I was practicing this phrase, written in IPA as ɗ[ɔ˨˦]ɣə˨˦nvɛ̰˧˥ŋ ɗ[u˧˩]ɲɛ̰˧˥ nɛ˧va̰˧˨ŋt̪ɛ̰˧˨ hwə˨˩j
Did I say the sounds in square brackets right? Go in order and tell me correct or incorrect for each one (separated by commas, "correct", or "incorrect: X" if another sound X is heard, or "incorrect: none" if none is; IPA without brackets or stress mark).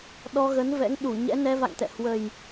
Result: incorrect: ɔ˧, correct